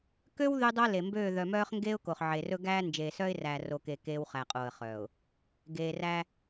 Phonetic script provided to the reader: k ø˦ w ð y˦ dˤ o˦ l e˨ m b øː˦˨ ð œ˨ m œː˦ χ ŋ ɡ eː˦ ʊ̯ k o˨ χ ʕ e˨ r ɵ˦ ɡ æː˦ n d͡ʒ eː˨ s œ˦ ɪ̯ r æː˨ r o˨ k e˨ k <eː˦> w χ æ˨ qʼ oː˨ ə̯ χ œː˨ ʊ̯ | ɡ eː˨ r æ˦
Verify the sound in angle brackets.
correct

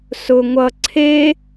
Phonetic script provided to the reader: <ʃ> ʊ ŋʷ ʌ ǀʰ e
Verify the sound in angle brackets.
incorrect: s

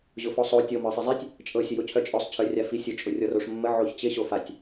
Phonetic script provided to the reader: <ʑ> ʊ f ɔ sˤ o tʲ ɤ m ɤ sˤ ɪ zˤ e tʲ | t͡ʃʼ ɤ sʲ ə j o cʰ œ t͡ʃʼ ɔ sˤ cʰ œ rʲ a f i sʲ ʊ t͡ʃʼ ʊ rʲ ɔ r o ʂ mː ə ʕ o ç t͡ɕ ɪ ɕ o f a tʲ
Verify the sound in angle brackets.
correct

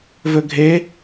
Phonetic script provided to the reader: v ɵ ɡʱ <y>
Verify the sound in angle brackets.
incorrect: e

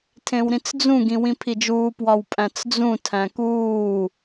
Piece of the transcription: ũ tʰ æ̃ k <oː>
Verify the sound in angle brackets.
incorrect: uː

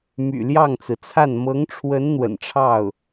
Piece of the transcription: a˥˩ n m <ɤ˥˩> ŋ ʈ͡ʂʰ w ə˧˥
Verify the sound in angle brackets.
incorrect: ɤ˧˥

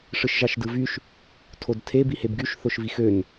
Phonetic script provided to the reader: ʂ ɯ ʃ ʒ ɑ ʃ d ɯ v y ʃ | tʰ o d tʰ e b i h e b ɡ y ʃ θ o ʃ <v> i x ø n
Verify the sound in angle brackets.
correct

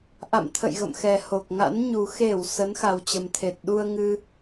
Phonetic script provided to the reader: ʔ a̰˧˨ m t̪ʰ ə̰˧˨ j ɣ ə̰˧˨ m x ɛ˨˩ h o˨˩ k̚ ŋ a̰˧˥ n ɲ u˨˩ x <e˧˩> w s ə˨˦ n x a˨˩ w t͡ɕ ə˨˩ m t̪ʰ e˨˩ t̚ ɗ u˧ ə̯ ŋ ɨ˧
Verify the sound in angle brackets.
correct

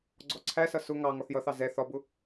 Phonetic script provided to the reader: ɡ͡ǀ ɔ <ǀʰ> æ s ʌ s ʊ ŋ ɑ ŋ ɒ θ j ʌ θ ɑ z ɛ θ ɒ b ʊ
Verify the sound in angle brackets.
correct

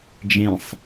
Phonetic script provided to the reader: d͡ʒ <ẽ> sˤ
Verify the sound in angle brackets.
correct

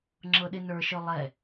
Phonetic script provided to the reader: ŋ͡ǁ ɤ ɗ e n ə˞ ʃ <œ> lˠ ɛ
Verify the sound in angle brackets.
correct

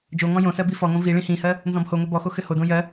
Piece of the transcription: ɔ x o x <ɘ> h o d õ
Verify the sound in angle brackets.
correct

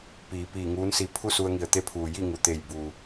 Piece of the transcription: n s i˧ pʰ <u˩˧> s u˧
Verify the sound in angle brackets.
incorrect: u˥˨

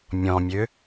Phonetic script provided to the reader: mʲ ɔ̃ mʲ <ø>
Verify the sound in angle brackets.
correct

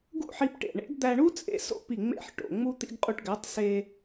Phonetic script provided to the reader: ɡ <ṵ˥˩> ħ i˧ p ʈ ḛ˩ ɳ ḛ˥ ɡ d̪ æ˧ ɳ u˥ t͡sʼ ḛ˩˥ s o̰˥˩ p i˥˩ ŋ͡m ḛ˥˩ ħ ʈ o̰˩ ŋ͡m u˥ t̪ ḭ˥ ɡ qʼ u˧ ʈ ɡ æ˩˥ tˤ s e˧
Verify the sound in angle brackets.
correct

